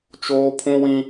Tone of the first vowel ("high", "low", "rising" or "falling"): high